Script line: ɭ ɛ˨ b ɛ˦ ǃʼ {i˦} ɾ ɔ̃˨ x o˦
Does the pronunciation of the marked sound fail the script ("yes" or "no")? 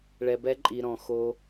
yes